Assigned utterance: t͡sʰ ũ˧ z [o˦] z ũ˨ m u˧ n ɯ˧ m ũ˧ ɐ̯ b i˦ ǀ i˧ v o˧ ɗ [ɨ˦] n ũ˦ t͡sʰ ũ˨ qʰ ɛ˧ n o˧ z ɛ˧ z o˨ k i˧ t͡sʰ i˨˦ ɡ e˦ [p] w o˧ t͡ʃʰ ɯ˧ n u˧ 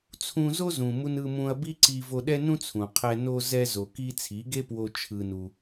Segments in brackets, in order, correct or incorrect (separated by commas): correct, incorrect, correct